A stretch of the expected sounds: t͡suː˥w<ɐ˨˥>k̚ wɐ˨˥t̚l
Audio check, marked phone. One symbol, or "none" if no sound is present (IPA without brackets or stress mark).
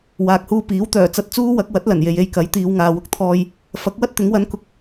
ɐ˨˥